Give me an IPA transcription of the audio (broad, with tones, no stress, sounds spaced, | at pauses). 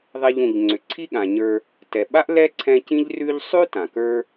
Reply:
ðˤ e˨ ʎ ũ˩ ʎ ŋ͡ǀ ʏ˩ ǀʰ i˦ ɠ ã˩ ɲ ə˞˨ | t ɛ˩ ɓ a˥ ʔ l ɛ˥ ǀʰ ɛ̃˦ c ĩ˥ ʎ r ʉ˦ ʎ sˤ ʉ˥ t ã˩ k ə˞˦